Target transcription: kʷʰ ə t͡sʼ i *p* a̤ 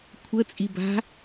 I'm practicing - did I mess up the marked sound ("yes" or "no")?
yes